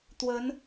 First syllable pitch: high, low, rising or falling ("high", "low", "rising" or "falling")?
rising